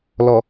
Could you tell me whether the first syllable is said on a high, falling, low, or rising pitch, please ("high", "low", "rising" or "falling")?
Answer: low